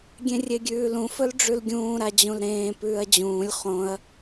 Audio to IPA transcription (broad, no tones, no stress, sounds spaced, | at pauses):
ɡʲ ẽ rʲ e ɡʲ ʉː l ũ f ɵ l ɖ͡ʐ ʉ l ɡʲ ũː ɾ a d͡ʑ ũ l ɾ ẽː p ʉː ɐ̯ d͡ʑ ũː lʲ χ õ ɐ̯